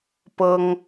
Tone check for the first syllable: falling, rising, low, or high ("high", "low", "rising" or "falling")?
high